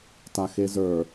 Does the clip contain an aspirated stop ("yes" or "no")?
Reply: no